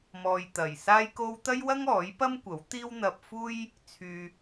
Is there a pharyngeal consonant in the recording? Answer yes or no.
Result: no